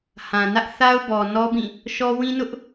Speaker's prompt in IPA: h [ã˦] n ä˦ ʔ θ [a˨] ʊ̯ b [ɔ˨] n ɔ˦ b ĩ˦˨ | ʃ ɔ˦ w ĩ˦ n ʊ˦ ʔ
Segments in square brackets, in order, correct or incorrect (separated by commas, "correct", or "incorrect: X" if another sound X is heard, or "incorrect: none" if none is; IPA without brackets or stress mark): incorrect: ã˨, incorrect: a˦, correct